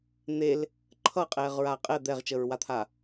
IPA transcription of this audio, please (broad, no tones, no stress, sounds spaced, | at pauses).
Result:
n̪ e l | ǃʰ ʌ qʼ ɛː ʁ ɹ aː qʼ ɛ d̪ ɛ ʁ t͡ʃ əː ɹ w a t̪ʰ a